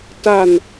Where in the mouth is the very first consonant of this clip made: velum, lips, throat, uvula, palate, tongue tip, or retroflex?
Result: tongue tip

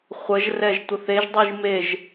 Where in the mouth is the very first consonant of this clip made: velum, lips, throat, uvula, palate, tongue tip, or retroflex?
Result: uvula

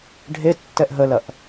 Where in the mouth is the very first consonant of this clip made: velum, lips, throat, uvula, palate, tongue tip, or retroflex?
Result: retroflex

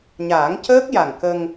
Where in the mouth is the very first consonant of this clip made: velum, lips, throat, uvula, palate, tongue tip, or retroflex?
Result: palate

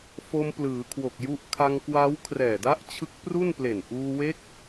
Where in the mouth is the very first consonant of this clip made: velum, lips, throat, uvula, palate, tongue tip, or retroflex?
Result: lips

